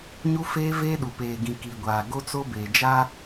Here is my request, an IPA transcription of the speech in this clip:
ɲ u˦ f eː˦ v eː˦ ɗ u˨ p eː˨ ɡ ĩ˨ k i˨ ɡʷ aː˨ ɡ o˦ t͡s o˦ b eː˨ d͡ʒ aː˦

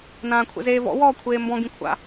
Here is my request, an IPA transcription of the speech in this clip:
n ãː kʷʰ ɛ̰ z eː v ɔ̰ w ɔː kʷʰ eː m b ɔ̃ ɡ ĩ kʷʰ a̰

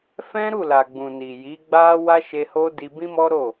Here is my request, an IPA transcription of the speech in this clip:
f ɛ̃˦ ɾ u˦˨ l a˨ ɡ͡b ũ˨ n i˨ j i˨˦ ɡ͡b a˦ w a˦ ʃ e˧ h o˦ d i˧ b ĩ˦ m ɔ˦ ɾ o˦˨

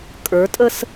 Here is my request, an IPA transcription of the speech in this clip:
kʼ ə˞ tʼ ə s

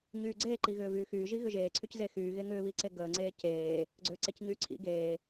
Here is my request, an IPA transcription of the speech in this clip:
ɲ yː ɡ͡ǀ eː ǃ i ɣ ʏː v yː x yː ʒ i ɣ ʏ ʒ eː ǀʰ y c z e x yː ɣ e ŋ ʏː β i ǀ e ɡ əː ŋ͡ǀ eː c eː | ɡ͡ǀ ʏː ǀ e c ɲ yː ǀʰ ḭ ɡ eː

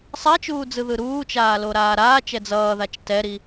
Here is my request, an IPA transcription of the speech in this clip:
sˤ a t͡ʃ uː d͡z ɯ ð ɯ ɾ uː t͡ʃ aː l o ɾ aː ɾ aː t͡ʃ ɛ d͡z ʌː ð a t͡ʃ t ɛ ɾ i

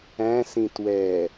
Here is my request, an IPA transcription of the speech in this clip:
æ̃ s ĩ t w ɛ

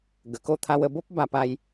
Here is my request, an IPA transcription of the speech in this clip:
ɡ ə˨˩ k o˥˧ t̪ʰ a˧ w ə˧ b o˦ p̚ b a˧ p a˦ j

